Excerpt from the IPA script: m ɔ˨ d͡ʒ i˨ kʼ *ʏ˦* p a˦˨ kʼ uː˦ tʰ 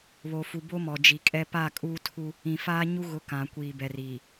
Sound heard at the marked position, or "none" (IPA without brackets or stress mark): ɛ˦